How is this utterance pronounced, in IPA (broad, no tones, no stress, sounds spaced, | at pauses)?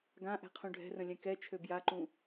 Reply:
ɡ ã ʔ ɛ̤ qʰ ũ ɖʱ ɛ̤ r ə̃ lʲ ɛ̃ k ɛ t͡ʃʰ ø b j a ǃ ũ